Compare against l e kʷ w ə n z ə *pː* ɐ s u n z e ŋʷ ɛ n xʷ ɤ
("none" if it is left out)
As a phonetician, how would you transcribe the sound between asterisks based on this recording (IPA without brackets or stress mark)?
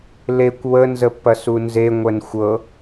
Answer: pː